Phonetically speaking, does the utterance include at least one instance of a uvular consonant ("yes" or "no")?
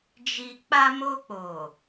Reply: no